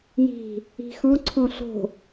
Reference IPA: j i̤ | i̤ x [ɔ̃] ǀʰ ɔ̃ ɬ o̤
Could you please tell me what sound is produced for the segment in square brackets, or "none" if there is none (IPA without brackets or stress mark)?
ɔ̃